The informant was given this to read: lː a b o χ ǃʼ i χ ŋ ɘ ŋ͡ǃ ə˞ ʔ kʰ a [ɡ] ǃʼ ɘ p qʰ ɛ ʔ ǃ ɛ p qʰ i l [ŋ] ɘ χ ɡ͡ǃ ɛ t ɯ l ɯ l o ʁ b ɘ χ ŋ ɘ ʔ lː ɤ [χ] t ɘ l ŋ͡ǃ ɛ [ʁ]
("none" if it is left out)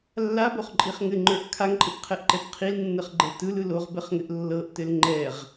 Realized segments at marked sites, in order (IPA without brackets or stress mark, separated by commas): ŋ, nː, ʔ, ʁ